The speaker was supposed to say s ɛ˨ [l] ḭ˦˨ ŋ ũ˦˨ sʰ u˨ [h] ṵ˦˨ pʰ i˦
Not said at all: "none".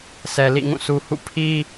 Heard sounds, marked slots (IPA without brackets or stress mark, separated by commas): l, h